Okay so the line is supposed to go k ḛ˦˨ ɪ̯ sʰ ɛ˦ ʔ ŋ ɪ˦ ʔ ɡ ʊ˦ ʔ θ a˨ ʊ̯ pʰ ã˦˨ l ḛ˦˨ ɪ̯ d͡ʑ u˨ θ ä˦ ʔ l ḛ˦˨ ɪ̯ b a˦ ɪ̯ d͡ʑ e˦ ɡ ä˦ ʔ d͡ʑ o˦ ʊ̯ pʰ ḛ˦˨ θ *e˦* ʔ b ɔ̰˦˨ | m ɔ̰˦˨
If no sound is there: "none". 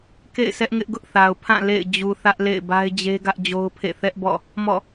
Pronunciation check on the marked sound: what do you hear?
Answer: ɛ˦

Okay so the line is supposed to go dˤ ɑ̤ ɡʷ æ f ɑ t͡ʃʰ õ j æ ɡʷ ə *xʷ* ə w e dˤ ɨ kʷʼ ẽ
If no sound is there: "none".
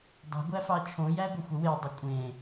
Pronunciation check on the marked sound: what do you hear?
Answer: xʷ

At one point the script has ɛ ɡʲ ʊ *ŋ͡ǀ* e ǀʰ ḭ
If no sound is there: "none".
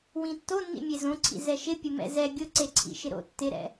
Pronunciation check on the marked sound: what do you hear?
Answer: ǀ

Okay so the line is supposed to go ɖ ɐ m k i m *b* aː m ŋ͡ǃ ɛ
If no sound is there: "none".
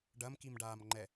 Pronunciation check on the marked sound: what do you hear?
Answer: ɖ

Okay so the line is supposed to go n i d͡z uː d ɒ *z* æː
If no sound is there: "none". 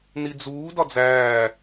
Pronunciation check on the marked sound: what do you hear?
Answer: d͡z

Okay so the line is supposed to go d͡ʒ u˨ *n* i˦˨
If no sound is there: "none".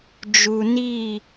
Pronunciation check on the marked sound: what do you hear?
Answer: n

